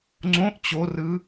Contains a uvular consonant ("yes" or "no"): no